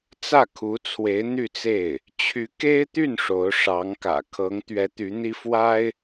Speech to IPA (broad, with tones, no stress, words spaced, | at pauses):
t͡sä˥˩kʰu˧˥t͡sʰwe˧˥ɪ̯ n̪y˥˧t͡se˥˩ɪ̯ | t͡ɕʰy˧˥ke˥ɪ̯t̪y˥˩n ʂo˧˥ʊ̯ʂɑ˧˥ŋkä̰˨˩ kʰɤ˧˥ŋ t̪ɥɛ˧˥t̪y˧˥n̪i˥ fwa˥ɪ̯